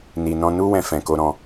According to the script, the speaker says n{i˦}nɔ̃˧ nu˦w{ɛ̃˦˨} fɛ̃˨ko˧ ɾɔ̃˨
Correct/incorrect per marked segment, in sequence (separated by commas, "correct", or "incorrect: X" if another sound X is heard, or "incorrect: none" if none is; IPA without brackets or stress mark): incorrect: i˨, incorrect: ɛ̃˧